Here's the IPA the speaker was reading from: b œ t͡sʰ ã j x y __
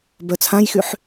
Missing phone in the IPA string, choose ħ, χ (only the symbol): ħ